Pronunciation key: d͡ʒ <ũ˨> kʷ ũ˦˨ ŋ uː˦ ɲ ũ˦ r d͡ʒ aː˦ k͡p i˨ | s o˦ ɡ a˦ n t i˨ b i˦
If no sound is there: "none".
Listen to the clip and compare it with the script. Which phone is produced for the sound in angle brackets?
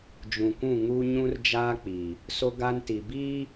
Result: ũ˨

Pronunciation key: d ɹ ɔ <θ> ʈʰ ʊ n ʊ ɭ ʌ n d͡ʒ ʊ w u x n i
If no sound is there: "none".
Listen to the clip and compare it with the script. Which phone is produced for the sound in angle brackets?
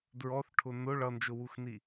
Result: θ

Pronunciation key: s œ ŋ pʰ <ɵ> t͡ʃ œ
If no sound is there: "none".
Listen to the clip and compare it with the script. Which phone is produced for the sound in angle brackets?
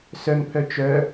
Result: œ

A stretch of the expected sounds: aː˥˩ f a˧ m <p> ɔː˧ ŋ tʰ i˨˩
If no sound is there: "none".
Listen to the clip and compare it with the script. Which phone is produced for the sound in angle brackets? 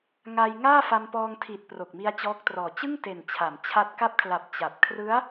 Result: p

